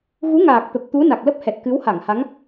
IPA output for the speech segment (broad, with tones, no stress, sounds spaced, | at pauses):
ɣ u˨˦ ŋ aː˨˩ k̚ t̪ ə˨˩ p̚ t̪ u˨˦ n a˨˩ k̚ l ə˦˥ p̚ h ɛ˨˩ t̚ k ɨ˨˦ w h a˧˩ ŋ h a˨˦ ŋ